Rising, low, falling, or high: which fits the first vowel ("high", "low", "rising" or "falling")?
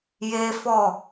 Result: high